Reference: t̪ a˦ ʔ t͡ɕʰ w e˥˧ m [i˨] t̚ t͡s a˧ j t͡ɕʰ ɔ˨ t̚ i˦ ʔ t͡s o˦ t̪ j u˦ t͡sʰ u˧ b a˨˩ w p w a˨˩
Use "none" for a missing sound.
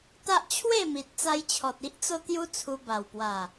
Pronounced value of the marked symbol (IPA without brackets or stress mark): i˨